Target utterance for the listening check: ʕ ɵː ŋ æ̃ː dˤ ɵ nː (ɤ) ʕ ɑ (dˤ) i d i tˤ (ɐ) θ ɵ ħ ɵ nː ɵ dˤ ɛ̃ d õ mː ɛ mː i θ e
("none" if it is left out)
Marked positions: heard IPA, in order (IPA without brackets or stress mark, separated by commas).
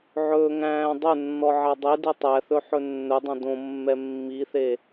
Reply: ɔ, dˤ, æ